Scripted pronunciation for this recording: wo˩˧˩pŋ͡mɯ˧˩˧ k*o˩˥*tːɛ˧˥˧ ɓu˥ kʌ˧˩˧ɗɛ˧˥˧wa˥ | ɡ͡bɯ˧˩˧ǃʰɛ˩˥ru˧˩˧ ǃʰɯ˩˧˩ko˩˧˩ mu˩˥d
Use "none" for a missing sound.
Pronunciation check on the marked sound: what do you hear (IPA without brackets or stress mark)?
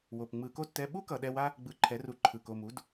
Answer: o˥